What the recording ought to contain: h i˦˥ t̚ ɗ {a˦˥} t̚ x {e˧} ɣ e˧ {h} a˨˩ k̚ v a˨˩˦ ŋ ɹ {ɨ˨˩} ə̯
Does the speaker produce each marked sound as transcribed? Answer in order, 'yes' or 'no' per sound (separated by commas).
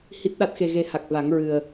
yes, yes, yes, yes